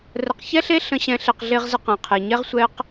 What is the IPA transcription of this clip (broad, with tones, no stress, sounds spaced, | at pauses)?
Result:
r ə˨ q ç ɛ˦ ɬ e˦ ɬ ə̃˧ ɕ ɛ̃˨˦ ɬ e˨ q ɮ e˧ ʁ z ə˧ q ɛ̃˨ qʰ e˨ ɲ ɛ˦ ʁ sʷ ɛ˦ q